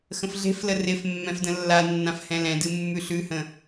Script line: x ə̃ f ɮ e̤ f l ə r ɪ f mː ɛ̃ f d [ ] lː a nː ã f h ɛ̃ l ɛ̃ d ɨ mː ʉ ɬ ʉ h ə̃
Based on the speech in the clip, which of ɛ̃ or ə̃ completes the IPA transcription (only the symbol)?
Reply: ə̃